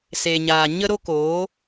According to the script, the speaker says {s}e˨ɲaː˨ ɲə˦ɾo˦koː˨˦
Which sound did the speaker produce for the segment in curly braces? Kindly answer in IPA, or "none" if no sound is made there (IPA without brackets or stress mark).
s